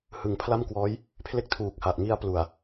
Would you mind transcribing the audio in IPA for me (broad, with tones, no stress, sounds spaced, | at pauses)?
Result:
h ɯ˩˦ ŋ pʰ l a˥˩ m k w ɔː˦˥ j | pʰ l e˥˩ k̚ tʰ uː˨˩ k̚ h a˨˩ ʔ ŋ i˧ a̯ p l u˨˩ a̯